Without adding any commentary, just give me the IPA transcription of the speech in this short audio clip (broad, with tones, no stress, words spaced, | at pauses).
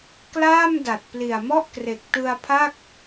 klaː˥˩mda˨˩t̚ pli˨˩a̯mɔ˥˩ʔkre˨˩k̚ tɯ˧a̯pʰa˥˩k̚